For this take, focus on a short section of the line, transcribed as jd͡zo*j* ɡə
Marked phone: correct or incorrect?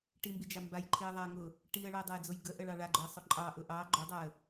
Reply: correct